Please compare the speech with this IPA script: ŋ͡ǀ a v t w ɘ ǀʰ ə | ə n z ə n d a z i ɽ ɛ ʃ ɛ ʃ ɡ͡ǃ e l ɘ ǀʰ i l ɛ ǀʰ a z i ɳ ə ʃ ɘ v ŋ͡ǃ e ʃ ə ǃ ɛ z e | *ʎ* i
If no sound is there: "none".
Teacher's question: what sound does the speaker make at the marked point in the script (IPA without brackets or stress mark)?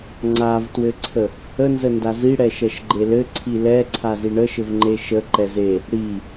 ɽ